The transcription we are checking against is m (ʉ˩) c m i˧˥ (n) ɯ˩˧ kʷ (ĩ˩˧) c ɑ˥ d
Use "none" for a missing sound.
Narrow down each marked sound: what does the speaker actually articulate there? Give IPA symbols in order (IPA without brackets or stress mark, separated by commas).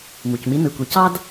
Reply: u˩, n, i˩˧